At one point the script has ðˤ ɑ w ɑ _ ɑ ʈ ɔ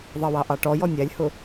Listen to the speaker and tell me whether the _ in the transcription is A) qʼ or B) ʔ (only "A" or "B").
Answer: B